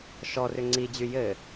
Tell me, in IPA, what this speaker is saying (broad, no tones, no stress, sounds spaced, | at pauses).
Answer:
ʃ ɔ r ʏ ŋ͡ǀ i d͡ʑ y j ɘ